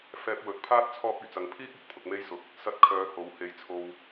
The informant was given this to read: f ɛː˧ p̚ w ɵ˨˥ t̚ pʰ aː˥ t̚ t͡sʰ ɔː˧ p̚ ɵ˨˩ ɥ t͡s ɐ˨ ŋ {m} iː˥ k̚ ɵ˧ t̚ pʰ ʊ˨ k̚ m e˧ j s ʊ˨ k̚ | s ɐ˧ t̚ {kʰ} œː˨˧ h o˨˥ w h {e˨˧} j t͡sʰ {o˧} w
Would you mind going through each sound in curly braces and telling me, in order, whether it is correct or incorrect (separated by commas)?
incorrect, correct, correct, correct